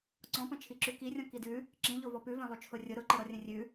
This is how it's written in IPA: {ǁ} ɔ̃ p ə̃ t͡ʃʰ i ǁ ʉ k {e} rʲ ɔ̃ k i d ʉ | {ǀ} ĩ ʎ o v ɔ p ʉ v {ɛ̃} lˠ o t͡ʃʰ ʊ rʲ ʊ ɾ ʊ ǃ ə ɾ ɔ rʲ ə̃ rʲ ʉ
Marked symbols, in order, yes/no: no, no, no, yes

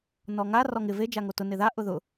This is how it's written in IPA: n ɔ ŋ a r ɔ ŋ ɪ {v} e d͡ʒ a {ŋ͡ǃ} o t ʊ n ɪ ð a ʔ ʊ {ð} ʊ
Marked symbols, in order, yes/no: yes, no, yes

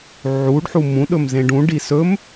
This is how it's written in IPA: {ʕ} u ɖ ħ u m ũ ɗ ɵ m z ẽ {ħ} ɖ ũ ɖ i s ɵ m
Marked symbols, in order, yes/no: yes, no

